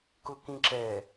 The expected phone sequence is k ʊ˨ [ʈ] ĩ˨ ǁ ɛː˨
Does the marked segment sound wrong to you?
yes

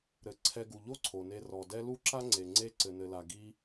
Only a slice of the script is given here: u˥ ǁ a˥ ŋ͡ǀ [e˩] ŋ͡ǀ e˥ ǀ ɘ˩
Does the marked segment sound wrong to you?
no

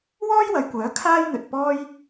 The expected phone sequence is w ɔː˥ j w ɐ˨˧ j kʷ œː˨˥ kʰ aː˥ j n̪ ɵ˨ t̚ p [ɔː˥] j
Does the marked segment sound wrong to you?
no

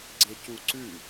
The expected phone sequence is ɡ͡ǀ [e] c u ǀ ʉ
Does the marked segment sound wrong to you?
no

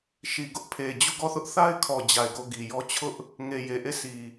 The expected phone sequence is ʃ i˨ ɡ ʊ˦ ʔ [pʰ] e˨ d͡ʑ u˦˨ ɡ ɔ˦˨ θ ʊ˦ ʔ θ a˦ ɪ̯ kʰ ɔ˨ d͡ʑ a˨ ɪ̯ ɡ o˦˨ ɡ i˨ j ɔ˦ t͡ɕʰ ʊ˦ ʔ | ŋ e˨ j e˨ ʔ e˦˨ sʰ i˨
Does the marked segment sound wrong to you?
no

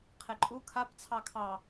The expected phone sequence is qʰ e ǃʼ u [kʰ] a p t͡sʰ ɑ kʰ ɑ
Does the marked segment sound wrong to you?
no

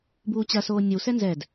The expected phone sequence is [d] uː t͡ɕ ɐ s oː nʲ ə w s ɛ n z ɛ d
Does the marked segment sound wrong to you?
yes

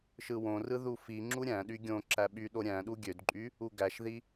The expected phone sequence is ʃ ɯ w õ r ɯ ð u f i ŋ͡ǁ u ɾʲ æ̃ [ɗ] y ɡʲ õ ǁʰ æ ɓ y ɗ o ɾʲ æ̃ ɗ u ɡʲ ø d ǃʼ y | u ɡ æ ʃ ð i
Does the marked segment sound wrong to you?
no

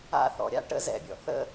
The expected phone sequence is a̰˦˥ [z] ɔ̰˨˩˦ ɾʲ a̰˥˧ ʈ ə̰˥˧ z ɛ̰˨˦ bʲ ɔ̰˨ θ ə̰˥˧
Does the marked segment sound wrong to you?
yes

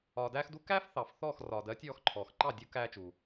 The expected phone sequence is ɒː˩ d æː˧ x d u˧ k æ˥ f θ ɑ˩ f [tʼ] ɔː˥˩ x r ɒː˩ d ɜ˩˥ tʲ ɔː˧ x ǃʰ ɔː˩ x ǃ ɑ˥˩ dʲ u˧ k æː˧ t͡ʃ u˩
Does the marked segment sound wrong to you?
yes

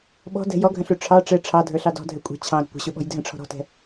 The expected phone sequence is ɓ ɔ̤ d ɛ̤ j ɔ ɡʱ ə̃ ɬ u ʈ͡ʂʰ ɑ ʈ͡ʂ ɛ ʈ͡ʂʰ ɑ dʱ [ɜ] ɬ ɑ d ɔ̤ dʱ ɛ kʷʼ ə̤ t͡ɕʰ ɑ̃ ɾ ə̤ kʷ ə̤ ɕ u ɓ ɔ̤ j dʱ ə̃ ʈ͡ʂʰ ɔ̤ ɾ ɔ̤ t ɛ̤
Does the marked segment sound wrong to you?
yes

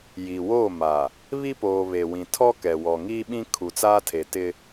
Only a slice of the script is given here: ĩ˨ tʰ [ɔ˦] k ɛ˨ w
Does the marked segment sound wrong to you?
no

